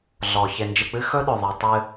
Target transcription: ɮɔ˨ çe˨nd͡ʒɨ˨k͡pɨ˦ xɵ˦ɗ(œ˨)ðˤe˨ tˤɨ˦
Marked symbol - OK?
no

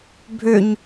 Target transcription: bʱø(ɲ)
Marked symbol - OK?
yes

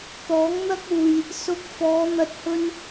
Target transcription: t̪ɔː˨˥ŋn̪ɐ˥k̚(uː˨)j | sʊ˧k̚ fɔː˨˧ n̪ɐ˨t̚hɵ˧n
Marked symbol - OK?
yes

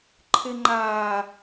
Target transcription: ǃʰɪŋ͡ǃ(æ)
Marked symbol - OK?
no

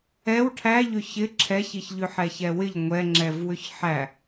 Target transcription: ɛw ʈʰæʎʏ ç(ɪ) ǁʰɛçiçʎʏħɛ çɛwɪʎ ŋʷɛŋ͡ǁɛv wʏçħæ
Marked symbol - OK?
yes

